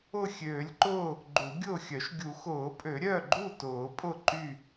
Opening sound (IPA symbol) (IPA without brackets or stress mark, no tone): ʊ